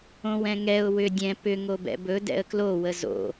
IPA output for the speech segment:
õ w ɛ̃ ŋ ɛ ʊ̯ w ʏ dʲ ɛ̃ p ʏ ŋ o b ɛ̰ b ɵ d ɛ̰ ə̯ k l o w ə z o̰

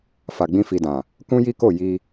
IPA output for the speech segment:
f a˨ ɡ͡b ĩ˧ f i˨ d ã˨ | k ũ˦ j i˦ k o˦˨ j i˧

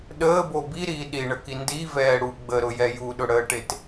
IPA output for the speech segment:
ɗ əː b o b i ɾ iː ɗ i ɳ ə k i n d i v ɛː ɽ u ɡ͡b ə ɾ ʊ j ɛ j u ɗ ʊ ɽ əː ʈ e t

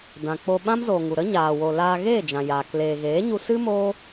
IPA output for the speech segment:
d ã˨ k͡p o˧ ɓ ã˦ m z oː˨ ŋ u˨ ɾ ə˦ ɲ aː˨ w o˨ l aː˧ ɣ eː˦˨ d͡ʒ ã˨ j aː˨ k l eː˨ ɣ eː˨˦ ɲ u˧ s ɨ˦ m oː˦

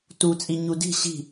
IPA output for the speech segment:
t u t͡sʼ i ɲ u d i̤ ɕ i̤

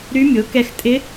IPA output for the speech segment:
ɾ y˧˥ mʲ o˩˥ k ɛ˧ x tʼ ɪ˧˥

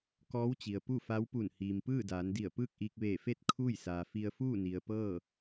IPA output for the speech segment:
k ɔː˧˥ w t͡ɕ i˩ ə̯ p u˥˨ f a˧˥ w p u˧˩ n h iː˩ m p ɯː˥˨ d aː˩˧ n d i˧˩ ə̯ p ɯː˥˨ k̚ ʔ iː˧ k̚ ʋ eː˧˩ f e˥˨ t̚ kʰ uː˥˨ j s aː˩ f i˧ ə̯ f uː˥˨ n i˩ ə̯ p ɤː˥˨

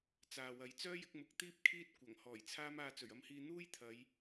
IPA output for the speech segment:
t͡s aː˨ w ɐ˨˧ j t͡s œː˥ j ɪ˨˥ k̚ m ʊ˨˥ k̚ t̪ iː˥ p̚ kʰ iː˥ t̚ kʷ ɐ˨˩ ŋ h ɔː˨˩ j t͡sʰ aː˥ m aː˧ t͡s ɵ˨˩ ɥ ɐ˧ m h iː˧ n̪ uː˥ j t̪ʰ ɐ˨˧ j

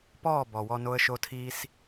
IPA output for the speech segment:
p ɔː˦˨ b ɔ˨ w ɔ˧ n o˧ ə̯ ʃ o˧ tʰ iː˧ s

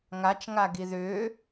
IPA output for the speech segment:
ŋ a t͡ʃ ŋ a ɡ i ð ʏː

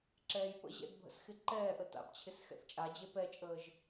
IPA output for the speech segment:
ǁ ɛː j p ə̰ ʑ ɛ̰ d bʱ ə̰ s x ɪ ǃ ɛː ʔ ə t a̰ p t͡ɕʰ ɪ s x ɛ̰ θ t͡ʃʼ a d͡ʑ e p ɛ t͡ʃʼ əː ʒ

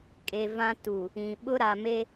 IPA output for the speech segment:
kʼ e˨ v ã˦ t u˨ | ĩ˨ ɓ ʊ˦ ɾ a˨ m e˦

